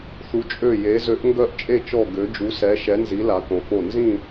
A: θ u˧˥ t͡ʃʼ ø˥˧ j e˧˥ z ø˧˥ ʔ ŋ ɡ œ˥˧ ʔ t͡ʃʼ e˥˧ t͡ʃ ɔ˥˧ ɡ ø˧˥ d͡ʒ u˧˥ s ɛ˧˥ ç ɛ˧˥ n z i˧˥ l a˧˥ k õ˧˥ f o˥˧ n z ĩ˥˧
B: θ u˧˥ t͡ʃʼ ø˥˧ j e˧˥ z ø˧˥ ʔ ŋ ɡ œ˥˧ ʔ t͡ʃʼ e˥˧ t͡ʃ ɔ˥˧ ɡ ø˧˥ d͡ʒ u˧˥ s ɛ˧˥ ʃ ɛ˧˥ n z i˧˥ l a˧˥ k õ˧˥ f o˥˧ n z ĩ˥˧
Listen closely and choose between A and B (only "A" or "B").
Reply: B